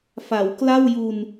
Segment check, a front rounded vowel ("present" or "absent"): absent